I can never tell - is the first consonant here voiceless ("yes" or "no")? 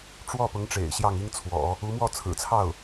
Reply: yes